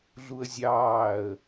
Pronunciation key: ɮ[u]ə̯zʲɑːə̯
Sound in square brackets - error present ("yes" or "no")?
no